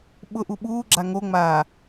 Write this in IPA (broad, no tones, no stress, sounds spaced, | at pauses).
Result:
ɓ ʊ ʔ u ɓ uː ɡ͡ǁ a ŋ o ŋ͡m aː